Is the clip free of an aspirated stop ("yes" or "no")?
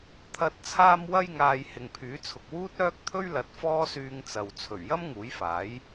no